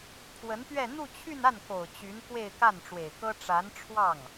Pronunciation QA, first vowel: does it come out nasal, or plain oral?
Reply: oral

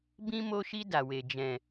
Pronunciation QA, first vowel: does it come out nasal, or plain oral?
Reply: nasal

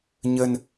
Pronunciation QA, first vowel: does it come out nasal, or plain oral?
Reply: oral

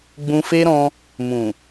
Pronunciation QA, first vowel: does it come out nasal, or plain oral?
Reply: nasal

